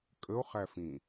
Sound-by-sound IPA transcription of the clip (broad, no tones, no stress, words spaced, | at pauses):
kʼəo̯χæfĩ